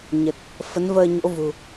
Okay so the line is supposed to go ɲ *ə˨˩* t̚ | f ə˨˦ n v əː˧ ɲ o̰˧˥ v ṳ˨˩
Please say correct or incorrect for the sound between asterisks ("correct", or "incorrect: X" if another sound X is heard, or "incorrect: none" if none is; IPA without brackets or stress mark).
correct